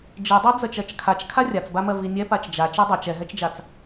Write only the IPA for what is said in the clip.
d͡ʒ i dˤ ɜ d͡z ɜ t͡ʃ ɜ t͡ʃ kʰ a t͡ʃ kʰ a rʲ a t͡s b a m ɜ v i nʲ ɛ p a t͡ʃ d͡ʒ a t͡ʃ i dˤ a t͡ʃ ɛ ɦ ɛ t͡ʃ d͡ʒ a t͡s

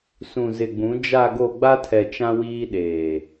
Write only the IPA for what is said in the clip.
s ũ˨ z ɪ˨ ɡ͡b ũ˨˦ d͡ʒ a˨ ɡ o˨ ɡ͡b a˦ tʰ ɛ˨ t͡ʃ ã˦ w iː˦ ɗ eː˨

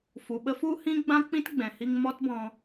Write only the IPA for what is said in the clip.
f u˨ ɓ ə˦ f u˦ h ĩ˦ ɡ͡b ã˦ k͡p ĩ˦ t ɡ͡b ɛ̃˨ h i˧ ŋ m ɔ˦ t b ɔ̃˧

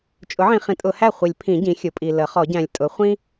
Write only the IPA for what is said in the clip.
t͡ʃʼ ʊ˩˥ ʕ ĩ˨ χ ĩ˩˥ tʼ ʊ˨˩˦ h æ˥˩ χʷ i˨˩˦ lʲ pʰ ĩ˨˩˦ ɟ ĩ˩˥ xʲ ʊ˩˥ pʼ i˨ l ə˩˥ χ ɔ˨˩˦ ɟ æ̃˨ lʲ tʼ ʊ˩˥ χʷ ĩ˥

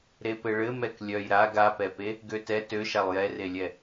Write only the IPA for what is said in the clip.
ɾ e p ɘ ɭ ɘ m ɛ k lʲ œ j ɾ a ɡ a p ɛ p e | ɡ ø t ɛ t ø ʃ a lˠ j ɛ r e lʲ ɛ

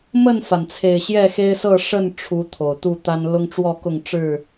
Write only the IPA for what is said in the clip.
m ə˥˨ n f a˩ n t͡sʰ e˨˩ ɪ̯ ɕ j ɛ˥˨ x e˦ ɪ̯ s ɤ˥˨ ʂ ə˥˨ n ʈ͡ʂʰ u˨˦ t̪ʰ o˨˩ ʊ̯ t̪ u˥˨ t̪ a˦ n l ʊ˦ ŋ ʈ͡ʂ w ɔ˥˨ k ʊ˥˨ ŋ ʈ͡ʂ ɻ̩˥˨

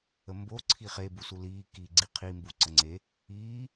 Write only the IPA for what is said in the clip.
ə m b o ǀʰ i χ e b u s u l iː k i ɡ͡ǀ i qʰ i m b u ǀ ə ŋ͡ǀ e | iː

